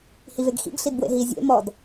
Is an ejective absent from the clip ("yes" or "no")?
yes